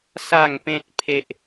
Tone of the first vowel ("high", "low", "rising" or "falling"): falling